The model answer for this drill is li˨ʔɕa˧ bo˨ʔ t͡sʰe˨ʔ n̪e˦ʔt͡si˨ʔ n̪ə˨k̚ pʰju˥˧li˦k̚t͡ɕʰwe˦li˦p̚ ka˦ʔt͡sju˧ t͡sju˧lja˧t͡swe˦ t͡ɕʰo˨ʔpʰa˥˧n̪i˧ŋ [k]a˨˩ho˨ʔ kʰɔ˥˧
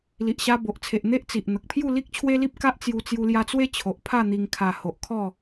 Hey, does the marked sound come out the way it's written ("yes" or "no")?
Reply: no